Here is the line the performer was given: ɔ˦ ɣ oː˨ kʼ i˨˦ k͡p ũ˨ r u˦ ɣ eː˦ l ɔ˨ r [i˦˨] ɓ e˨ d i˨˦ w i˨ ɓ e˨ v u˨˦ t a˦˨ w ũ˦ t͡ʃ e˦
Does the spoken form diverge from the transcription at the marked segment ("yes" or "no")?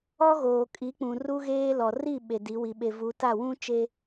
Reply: no